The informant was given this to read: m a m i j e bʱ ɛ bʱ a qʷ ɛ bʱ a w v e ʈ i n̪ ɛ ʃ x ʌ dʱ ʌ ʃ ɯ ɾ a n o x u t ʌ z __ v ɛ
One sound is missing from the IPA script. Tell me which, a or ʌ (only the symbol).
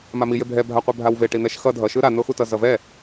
ʌ